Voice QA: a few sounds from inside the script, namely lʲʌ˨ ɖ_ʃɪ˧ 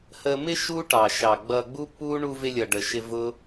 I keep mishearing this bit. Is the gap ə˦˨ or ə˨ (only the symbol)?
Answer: ə˨